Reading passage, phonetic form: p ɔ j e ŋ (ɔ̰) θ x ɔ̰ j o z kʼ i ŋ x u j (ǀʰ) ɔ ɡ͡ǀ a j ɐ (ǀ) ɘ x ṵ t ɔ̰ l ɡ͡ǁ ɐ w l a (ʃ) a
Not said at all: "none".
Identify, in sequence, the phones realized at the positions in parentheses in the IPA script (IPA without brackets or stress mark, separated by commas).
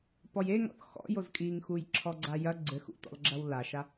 ɔ̰, ǁʰ, ɡ͡ǀ, ʃ